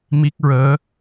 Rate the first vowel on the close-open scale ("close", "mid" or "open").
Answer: close